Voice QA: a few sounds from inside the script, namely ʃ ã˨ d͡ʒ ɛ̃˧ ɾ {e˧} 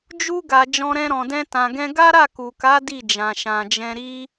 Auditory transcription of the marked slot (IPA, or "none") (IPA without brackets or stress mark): i˧